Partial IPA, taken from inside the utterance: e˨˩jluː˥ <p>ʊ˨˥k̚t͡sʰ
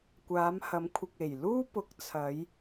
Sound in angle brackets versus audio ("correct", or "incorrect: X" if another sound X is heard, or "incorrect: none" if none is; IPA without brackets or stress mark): correct